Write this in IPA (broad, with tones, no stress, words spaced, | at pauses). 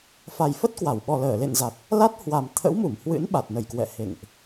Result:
fa˨˩jfə˦˥t̚kwa˧˩wɓɔ˨˩ ləː˧˩lḛ˧˨nza˨˩t̚ | la˦˥t̚ hwa˨˩m t̪ʰə̰˧˥wmu˧˩mhwɨ̰˧˥n ɓa˨˩t̚nə˧˩jkwɛ̰˧˨ hḛ˧˨ŋʔ